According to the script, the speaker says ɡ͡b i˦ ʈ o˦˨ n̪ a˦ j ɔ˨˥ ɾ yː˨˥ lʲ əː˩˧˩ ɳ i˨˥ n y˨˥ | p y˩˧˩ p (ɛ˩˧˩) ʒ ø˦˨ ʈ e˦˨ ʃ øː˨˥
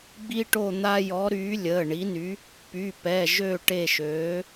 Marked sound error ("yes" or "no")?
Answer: no